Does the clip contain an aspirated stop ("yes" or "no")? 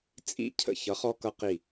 yes